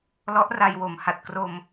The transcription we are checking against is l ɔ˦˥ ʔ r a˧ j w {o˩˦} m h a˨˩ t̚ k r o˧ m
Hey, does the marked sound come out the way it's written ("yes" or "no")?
no